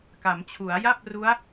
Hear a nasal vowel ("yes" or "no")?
no